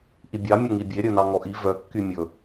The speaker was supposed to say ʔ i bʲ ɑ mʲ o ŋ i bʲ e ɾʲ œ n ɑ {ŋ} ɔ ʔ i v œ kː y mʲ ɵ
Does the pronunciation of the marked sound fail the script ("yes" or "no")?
no